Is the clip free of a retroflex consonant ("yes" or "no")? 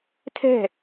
yes